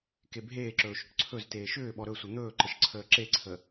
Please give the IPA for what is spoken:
kebʱeːǁɵː ʃʏʈǀʰɵzteː ʃʏː ɓɔɾɵsʷɘ n̪ɵːǃəʃ ǀʰəːǁeǀʰə

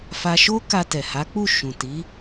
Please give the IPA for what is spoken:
fa˧ʃo˦ ka˧tɛ˨ha˨˦k͡pu˦˨ ʃũ˨ti˨˦

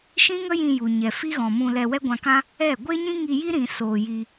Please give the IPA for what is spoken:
ʃĩ˦ŋə˦ jĩ˧ ju˨ ɲɛ˨fi˦ɣɔ̃˨mũ˧ lɛ˧wɛ˦ɡʷã˧kã˦ | ɛ˦˨ ɡʷe˦ɲĩ˦ŋi˧ji˦ ɾĩ˧ soː˧ji˧

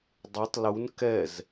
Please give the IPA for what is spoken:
dˤetˤ lun kɛz

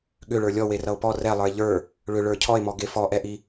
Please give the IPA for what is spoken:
ɠʏɭə˞ lʲɔwerʌo̯ pɔ rɛlˠə˞e̯ ʎə˞ | ɭʏɭə˞ cʰɔe̯mɔɡe fɔʔɛʔi

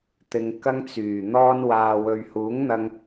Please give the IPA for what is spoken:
t̪ɪ˨ŋkɐ˧ŋt͡syː˨˩ n̪ɔː˧nwaː˨ wɵ˨ɥhuː˨˥ŋn̪ɐ˧ŋ

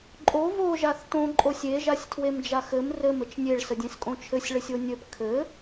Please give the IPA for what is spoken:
ǃʼo vo ʒaθtõ ǃʼosʲe ʒasʲtʰwemd͡ʒaxɘm rɘm ɘt͡ʃnʲeɭ sədʲẽskʼõt͡ʃʰɘsʲ ɭɘsʲonʲɘp kʰɘ

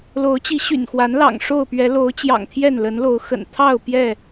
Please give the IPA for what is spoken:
lo˨˦ʊ̯t͡ɕi˨˦ɕy̰˨˩nxwa˨˦n lɑ̰˨˩ŋ ʂo˥˨ʊ̯pɥɛ˨˦ lo˨˦ʊ̯t͡ɕjɑ̰˨˩ŋ t̪ʰjɛ˥˨nlə˨˦nlo˨˦ʊ̯ xə̰˨˩nt̪ʰɑ˥˨ʊ̯ pjɛ˥˨

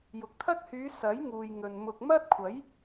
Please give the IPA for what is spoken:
jʊ˨k̚t̪ʰɐ˥k̚ hyː˨˧ sɐ˨˥jŋuː˨jŋɵ˨n mʊ˨k̚mɐ˥t̚ kʷʰɐ˨˥j

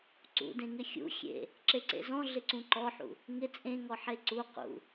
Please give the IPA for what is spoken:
ǀṵdẽŋɪ xʲṵ xʲḛ | ǁeǀḛzɔ̃ ɮɪǀũǃɔħṵ | ŋɪ t͡sʼẽŋɔ ħeǀu qṵ

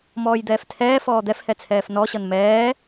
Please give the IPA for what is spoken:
mɔːjd̪ɛːftʰɛːfɔː d̪ɛfhɛ t͡sʰɛːfnɔɕʌn mɛː

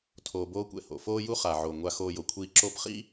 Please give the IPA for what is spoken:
tʰoː˧boː˦kʷɛ̰˦ho̰˨ foː˦ju˦χa˨ʕo˨ ŋʷa˧xoː˧jo˨kʷʰiː˧ ǁo˧pχḭ˦

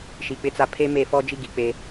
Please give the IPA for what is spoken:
ʃi˨k͡pɪ˦t͡sa˦ pʰe˦me˦˨fɔ˦d͡ʒi˦ ɡi˨˦ k͡pe˦

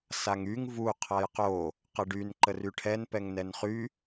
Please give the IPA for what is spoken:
saŋyŋ vu qʰajqo | qəɖyn ǃəryʈʰɛn pɛŋnɛnχy

